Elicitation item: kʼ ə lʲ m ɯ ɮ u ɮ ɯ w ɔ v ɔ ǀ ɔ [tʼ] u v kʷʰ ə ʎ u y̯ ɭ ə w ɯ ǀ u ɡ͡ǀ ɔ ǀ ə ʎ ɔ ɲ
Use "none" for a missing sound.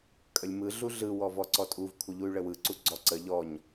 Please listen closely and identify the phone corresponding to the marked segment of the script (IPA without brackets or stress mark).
tʼ